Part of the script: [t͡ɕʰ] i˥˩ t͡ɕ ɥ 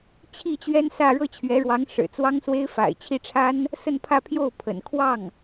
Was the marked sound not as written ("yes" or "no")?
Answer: no